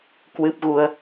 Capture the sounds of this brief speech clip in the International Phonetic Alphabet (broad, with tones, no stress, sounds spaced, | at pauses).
k w ɨ˦˥ p̚ ɣ u˧ ə̯